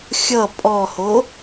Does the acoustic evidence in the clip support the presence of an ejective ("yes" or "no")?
yes